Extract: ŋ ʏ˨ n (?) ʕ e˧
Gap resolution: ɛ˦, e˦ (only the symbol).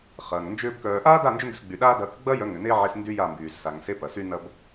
e˦